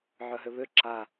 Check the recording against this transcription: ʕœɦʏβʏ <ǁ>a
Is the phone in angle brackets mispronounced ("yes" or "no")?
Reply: no